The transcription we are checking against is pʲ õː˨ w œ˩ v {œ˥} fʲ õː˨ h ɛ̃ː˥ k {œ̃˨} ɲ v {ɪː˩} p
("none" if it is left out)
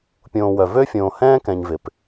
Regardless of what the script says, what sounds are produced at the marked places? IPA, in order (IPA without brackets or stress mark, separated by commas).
ø˥, ɛ̃˨, ɪ˩